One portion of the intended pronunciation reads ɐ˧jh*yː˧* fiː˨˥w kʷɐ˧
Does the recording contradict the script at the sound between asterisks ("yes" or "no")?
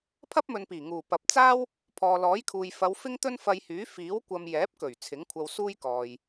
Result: yes